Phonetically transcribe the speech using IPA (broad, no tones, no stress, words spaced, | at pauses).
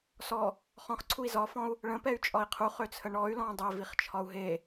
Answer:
sɔ | χɔ̃χǀʰui̯ zɒfɔ̃u̯ | ɭə̃pɛy̯t͡ʃʼɒi̯ qʰuχøt͡sʰə ɳɔy̯lɔ̃ dˤɛviχt͡ʃʰɒu̯ ɦe